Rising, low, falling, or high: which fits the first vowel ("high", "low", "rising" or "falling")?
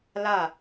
falling